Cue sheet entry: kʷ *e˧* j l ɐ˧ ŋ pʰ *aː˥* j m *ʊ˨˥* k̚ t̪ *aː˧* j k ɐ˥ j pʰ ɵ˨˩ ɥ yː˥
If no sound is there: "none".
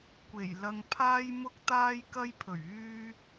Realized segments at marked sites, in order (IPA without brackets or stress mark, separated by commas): e˨˩, aː˥, ʊ˥, aː˥